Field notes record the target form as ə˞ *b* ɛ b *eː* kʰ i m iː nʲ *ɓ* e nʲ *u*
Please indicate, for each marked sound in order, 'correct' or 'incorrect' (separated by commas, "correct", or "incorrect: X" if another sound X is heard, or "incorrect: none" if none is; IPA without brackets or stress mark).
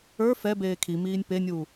incorrect: f, correct, incorrect: p, incorrect: uː